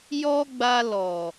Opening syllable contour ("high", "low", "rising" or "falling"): high